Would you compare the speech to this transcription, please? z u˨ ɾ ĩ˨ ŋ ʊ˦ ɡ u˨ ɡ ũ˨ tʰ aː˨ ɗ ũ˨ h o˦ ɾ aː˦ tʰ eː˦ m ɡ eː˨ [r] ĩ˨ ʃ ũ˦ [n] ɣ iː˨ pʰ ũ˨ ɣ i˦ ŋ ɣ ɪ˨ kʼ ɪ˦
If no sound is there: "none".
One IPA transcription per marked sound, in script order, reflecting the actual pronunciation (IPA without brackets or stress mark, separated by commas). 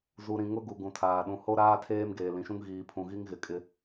l, ŋ